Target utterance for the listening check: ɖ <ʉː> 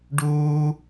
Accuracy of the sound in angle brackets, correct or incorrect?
incorrect